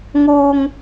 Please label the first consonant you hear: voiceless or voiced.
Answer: voiced